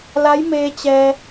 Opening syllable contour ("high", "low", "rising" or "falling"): rising